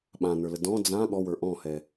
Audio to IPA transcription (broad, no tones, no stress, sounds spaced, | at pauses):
ɓ ã n ə˞ l ə d ɔ̃ d͡z ã ɠ ɔ w ə˞ ʔ ɔ̃ h ɛ